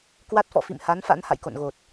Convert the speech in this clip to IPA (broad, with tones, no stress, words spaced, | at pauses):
kwa˦˥t̚fɔ̰˧˨fḭ˧˨m ha˨˦nfa̰˧˥n ha̰˧˨jko̰˧˨nɣo˨˩t̚